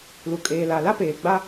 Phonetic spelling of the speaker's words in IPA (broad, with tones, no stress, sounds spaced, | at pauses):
l u˨ kʼ eː˨ l a˨ l a˦ p eː˨ ɡ͡b a˦